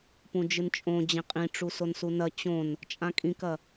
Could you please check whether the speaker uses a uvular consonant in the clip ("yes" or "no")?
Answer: yes